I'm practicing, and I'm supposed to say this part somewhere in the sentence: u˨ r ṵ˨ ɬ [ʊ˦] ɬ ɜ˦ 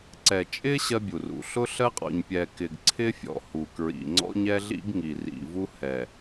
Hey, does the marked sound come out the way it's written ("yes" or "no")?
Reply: yes